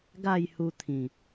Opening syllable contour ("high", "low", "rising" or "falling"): falling